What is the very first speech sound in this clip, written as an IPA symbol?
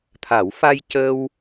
t̪ʰ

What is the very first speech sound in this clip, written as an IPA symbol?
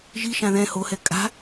ʒ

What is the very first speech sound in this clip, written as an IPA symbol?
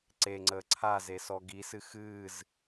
ǀ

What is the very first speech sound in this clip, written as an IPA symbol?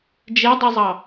d͡ʒ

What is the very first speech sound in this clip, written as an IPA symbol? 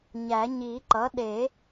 ɲ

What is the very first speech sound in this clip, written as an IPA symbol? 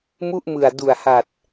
m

